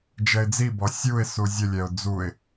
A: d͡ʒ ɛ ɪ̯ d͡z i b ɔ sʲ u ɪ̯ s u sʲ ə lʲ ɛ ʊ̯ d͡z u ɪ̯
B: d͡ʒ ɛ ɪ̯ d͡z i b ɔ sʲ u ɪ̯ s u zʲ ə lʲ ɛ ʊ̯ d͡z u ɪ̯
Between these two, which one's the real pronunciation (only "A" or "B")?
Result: B